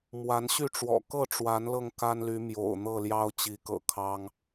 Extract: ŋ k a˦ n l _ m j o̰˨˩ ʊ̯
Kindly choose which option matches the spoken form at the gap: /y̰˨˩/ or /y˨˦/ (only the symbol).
y˨˦